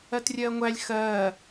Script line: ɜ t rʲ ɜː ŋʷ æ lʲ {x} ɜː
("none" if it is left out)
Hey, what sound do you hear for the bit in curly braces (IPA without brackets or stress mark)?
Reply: x